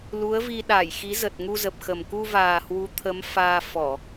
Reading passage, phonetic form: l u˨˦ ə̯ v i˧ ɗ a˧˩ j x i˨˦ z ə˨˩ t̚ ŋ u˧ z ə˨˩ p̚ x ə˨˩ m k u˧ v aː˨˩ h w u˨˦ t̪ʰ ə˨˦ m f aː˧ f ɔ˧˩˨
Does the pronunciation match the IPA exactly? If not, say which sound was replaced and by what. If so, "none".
none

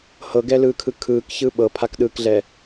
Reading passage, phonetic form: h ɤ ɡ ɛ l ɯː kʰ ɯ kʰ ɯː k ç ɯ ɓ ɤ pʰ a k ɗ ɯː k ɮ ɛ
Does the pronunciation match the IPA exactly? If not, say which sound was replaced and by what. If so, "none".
none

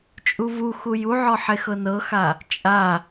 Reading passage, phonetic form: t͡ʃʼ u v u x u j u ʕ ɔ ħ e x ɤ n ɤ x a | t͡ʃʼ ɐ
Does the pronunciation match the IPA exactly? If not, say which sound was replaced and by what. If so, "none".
ɐ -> a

